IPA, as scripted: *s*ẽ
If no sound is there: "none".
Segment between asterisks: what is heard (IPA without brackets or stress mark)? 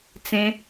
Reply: t͡s